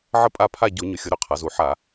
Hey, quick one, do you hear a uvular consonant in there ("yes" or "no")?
yes